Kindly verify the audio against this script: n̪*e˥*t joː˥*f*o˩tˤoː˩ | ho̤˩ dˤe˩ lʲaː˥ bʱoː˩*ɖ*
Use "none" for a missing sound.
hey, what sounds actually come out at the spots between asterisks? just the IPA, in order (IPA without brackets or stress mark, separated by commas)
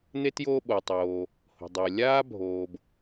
e˥, ɓ, b